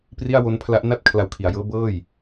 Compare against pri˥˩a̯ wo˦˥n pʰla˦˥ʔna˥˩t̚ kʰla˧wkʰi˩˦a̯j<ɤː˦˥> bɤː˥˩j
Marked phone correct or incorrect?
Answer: correct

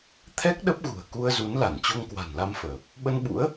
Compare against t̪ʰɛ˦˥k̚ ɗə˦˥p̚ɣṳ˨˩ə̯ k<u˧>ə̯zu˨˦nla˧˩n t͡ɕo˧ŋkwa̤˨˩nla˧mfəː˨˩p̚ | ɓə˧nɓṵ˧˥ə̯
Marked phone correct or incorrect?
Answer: correct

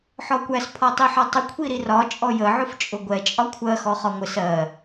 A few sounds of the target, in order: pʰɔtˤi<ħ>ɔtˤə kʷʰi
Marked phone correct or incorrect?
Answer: correct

